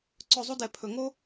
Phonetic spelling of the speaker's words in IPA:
ǀ ɵ˦˨ zˤ u˥ d ɛ˧˩˧ pʰ ɵ˩ ŋ o˥

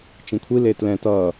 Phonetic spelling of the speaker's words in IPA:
t͡ʃ ĩ kʷʰ i l e t l ɛ̃ t ʌ

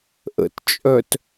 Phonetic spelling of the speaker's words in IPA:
ʔ ə̰ t t͡ʃʼ œ t

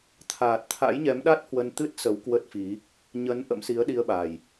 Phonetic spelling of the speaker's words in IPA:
t̪ʰ aː˨˩ t̚ t̪ʰ a̰˧˥ j ɲ ɛ˨˦ m ɗ a˦˥ t̚ h w ə˧ n t̪ ɨ˦˥ t̚ s ə˨˦ w k w ə˦˥ t̚ f i˨˦ | ɲ ə˨˦ n ʔ ə̰˧˥ m s i˨˦ ə̯ ɗ i˧ ə̯ ɓ a˨˩ j

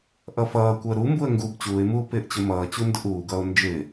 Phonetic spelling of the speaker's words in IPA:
ʔ ʌ f ʌː kʷ əː ɾ u m b u ə̯ ŋ ɡ uː b t͡ɕ uː ɪ̯ m uː p ɪː ʔ t͡ɕ ʊ m ʌː t͡ɕ u n d ʊ ʔ uː ɡ ʌː ʊ̯ n d͡ʒ ɪː

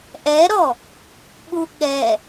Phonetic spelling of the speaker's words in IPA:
ʔ ɛ ɾ ɔ | ɓ u ɠ ɛ

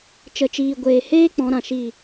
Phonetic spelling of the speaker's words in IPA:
t͡ʃ ə˨ t͡ʃ iː˨ ɡʷ eː˨ h eː˦ k͡p ɔ̃˨˦ ɾ ã˨ ʃ i˦˨

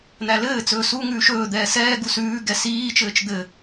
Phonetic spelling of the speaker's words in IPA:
n̪ æ l ɘː t͡s ɵː s u ŋ ʉː ʃ ɵː d̪ ɛː s ɛː ɡ u s ʉː ɡ ɛ s iː t͡ʃ ɘː t͡ʃ d̪ ɘ

